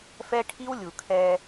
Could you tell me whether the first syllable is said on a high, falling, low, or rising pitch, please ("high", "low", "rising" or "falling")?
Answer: high